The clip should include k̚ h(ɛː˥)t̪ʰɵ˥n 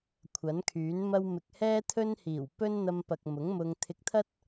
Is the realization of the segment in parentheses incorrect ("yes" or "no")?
no